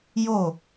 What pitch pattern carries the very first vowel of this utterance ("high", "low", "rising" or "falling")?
falling